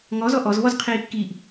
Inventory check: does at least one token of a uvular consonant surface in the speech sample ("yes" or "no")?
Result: yes